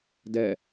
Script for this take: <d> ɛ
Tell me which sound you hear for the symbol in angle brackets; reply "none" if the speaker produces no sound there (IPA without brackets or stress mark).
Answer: d